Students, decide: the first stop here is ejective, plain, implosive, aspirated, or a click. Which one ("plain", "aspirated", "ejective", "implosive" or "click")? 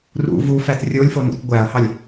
plain